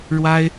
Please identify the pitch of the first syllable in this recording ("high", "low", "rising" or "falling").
high